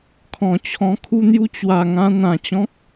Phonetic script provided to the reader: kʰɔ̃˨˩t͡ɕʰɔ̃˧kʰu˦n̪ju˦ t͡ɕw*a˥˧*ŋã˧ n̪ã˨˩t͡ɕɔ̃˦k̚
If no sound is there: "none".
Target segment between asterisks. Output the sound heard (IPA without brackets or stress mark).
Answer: a˨˩